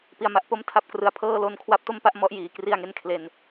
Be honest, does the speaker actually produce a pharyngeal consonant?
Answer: no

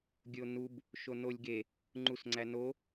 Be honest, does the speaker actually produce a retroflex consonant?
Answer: no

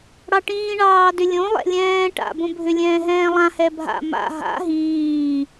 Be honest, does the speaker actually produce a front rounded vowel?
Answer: yes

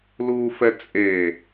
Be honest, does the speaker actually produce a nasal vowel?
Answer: no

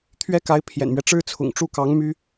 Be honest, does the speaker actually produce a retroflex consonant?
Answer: yes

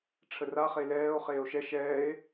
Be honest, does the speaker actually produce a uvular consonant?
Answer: yes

